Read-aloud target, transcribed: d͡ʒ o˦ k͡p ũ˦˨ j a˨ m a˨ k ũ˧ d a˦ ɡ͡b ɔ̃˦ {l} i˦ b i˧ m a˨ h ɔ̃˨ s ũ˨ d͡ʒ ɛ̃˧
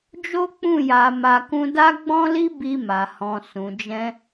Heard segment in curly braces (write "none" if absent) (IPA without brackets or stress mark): l